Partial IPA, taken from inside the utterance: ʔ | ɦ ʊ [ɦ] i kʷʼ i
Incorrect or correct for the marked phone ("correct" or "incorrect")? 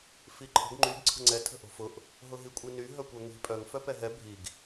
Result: correct